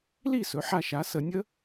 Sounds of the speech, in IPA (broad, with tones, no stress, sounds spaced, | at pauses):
l i˥˨ s ɵ˩˥ ħ a˧ ʃ a˩˥ s ə˨˩˦ nʲ ə˦˥